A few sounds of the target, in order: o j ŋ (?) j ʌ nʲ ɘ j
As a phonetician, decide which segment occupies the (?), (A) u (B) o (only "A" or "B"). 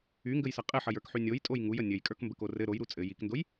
A